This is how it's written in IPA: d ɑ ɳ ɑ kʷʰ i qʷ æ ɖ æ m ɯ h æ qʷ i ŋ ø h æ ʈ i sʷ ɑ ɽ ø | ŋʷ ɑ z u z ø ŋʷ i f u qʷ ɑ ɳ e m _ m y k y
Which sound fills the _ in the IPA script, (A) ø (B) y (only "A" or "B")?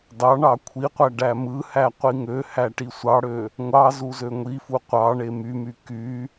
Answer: B